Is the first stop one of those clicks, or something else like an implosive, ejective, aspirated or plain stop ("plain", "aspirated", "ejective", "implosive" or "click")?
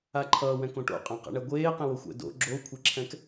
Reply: click